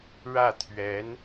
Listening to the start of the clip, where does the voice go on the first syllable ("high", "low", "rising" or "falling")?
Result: falling